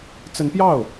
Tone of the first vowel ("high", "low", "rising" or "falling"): rising